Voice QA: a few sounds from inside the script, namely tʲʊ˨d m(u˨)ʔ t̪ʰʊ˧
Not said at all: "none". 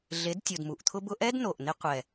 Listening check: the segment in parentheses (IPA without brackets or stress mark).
u˨